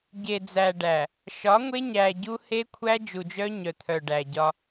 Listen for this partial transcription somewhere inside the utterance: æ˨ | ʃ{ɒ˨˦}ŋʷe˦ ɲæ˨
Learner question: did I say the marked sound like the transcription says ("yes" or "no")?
yes